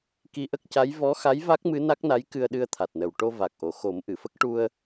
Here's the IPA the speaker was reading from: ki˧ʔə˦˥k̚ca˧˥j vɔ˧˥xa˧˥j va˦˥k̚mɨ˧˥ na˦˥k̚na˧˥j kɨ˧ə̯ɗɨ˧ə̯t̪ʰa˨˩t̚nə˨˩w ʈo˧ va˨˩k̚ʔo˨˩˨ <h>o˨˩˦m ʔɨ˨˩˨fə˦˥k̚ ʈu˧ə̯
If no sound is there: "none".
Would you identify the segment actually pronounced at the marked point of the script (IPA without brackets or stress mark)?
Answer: x